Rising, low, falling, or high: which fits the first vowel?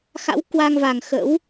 rising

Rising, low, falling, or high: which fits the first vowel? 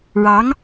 rising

